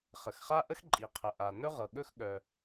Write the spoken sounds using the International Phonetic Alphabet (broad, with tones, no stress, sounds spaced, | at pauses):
χ ə˩ x χ a˥ ʔ ə˥ x ǃʼ i˩ qʰ ə˩ ʔ a˩ n ɵ˥ ʁ ɤ˩ ɠ ɵ˥ x ɠ œ˩